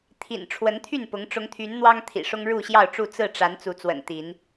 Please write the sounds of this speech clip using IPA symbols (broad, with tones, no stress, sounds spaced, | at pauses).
t̪ʰ ḭ˨˩ n ʈ͡ʂʰ w ə˨˦ n t̪ʰ y˥˨ n p ʊ˨˦ ŋ ʈ͡ʂ ʊ˨˦ ŋ t̪ʰ y˨˦ n n̪ w ɑ˦ ŋ t̪ʰ ḭ˨˩ ʂ ʊ˦ ŋ ɻ u˥˨ ɕ j ɑ˥˨ ʊ̯ ʈ͡ʂ u˥˨ t͡s ɹ̩˥˨ ʈ͡ʂ a˨˦ n t͡s u˨˦ t͡s w ə̰˨˩ n t̪ i˨˦ n